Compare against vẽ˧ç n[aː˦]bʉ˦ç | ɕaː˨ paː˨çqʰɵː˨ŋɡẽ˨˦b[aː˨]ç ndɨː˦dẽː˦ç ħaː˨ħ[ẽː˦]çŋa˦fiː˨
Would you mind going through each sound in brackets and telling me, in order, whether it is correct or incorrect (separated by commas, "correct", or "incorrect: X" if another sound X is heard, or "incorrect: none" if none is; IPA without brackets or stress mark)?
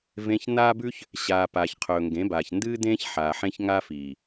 correct, correct, incorrect: ẽ˦